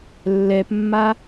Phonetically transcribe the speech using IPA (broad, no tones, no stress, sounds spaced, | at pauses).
lː ɛ p mː a